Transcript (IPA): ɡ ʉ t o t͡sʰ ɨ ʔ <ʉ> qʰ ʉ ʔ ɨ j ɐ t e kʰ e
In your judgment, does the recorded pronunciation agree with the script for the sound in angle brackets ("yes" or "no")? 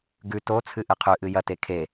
no